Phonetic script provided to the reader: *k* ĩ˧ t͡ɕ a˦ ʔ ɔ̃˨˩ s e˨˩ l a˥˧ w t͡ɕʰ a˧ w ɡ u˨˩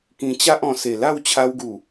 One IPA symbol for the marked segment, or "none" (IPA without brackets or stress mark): k